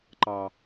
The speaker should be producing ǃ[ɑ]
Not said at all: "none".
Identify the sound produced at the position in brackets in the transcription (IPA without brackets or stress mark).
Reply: ɑ